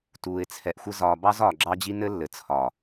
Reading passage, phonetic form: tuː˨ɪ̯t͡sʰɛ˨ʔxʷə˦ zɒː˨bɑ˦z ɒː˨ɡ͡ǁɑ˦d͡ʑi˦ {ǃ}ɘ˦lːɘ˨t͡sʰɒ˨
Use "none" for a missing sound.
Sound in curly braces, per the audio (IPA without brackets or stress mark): n